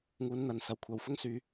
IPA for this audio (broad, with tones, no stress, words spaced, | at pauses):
ŋuː˨˧nn̪ɐ˨nsɐ˨w kʷʰɐ˨wfʊ˥ŋ syː˧